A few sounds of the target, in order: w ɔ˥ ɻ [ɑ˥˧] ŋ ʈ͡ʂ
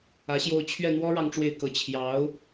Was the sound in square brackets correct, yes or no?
yes